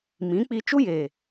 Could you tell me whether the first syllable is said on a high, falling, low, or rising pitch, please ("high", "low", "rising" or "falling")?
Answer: rising